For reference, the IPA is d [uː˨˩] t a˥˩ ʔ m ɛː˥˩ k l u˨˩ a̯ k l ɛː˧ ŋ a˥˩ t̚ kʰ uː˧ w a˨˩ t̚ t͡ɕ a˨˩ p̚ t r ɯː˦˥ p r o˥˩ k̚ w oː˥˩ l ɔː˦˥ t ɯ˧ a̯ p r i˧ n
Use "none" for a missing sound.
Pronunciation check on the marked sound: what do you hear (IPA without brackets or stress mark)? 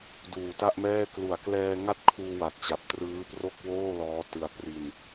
uː˨˩